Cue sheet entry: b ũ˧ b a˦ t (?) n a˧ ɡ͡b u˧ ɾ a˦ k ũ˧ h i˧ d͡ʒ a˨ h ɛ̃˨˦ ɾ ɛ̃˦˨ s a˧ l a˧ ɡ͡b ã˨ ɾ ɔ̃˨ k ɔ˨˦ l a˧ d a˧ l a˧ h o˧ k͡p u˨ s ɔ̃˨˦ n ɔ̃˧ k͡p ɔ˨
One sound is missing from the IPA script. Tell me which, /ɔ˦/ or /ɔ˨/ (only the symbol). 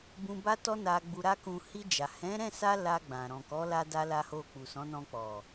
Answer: ɔ˦